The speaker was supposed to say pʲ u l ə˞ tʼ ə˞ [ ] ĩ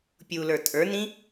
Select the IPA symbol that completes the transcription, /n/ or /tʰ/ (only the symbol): n